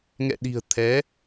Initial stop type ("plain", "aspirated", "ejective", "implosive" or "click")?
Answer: implosive